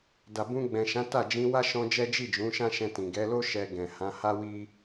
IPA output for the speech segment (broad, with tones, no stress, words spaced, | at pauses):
da˨bũ˧ ɡ͡bɛ̃˨ʃã˨˦ ta˦˨d͡ʒĩ˧ wa˦ʃɔ̃˧ d͡ʒɛ˦ d͡ʒi˦˨d͡ʒũ˨˦ ʃã˦ʃɛ̃˧tĩ˨ ɡɛ˨˦lo˦ ʃɛ˧ɡɛ̃˨ hã˨˦ha˦wi˦